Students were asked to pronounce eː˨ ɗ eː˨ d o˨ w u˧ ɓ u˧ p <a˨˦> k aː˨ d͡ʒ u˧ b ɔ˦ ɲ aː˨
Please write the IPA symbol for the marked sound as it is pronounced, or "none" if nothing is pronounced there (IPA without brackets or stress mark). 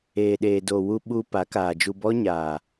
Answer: a˨˦